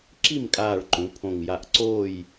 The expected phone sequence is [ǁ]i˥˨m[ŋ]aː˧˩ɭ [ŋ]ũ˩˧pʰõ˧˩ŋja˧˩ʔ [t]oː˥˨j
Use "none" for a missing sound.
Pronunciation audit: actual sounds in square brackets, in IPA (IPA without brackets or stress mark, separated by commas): ǁ, kʼ, ǃ, ǀ